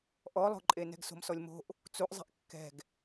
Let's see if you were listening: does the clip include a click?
yes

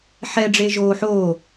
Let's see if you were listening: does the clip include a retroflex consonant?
yes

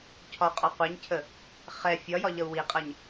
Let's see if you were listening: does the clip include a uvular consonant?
yes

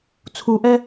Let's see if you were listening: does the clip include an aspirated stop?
yes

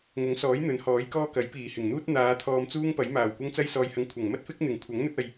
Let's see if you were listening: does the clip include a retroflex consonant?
no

